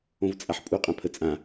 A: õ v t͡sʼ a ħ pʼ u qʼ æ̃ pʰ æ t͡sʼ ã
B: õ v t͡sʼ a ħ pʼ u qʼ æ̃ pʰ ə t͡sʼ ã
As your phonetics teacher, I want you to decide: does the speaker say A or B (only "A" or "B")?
B